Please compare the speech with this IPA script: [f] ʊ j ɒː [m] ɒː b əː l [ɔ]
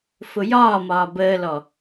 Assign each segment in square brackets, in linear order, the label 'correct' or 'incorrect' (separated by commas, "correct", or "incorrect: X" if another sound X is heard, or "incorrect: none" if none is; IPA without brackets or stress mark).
correct, correct, correct